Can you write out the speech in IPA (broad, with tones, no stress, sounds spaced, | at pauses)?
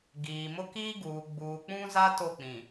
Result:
ɡ iː˨ m ʊ˦ k iː˦ ɡ uː˨ ɡ͡b uː˨ k͡p ũ˦ z a˦ t o˦˨ k͡p ĩ˨